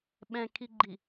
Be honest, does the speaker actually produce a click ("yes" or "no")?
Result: yes